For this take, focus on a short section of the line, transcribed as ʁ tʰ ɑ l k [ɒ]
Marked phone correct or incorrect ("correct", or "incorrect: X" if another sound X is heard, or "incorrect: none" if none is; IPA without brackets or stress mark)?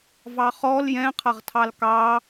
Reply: incorrect: ɑ